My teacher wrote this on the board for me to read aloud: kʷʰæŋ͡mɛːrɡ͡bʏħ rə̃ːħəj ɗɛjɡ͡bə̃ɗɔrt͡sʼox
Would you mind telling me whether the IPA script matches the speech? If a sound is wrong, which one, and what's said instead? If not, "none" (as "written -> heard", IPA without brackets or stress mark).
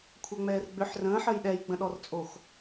none